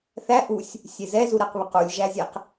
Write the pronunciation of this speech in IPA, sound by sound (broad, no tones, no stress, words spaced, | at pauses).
θæ ʔusʲ | sʲezɛzu ɾɛqβequlʲ ʒæzʲɛq